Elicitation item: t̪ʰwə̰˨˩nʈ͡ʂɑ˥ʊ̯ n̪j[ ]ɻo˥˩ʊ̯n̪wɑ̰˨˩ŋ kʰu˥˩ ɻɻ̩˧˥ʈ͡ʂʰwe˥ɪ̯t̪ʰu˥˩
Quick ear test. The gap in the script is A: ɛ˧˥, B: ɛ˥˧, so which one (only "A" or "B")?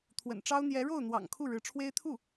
A